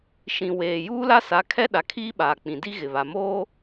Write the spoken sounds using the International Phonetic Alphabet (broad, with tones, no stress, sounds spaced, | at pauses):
ʃ ĩ˨ w eː˨ j uː˦ l a˦ s a˨˦ kʰ ɛ˦ ɗ a˨ kʰ iː˦ ɓ aː˨ k͡p ĩ˨ d i˦ ɣ ɪ˨ β a˨ m oː˦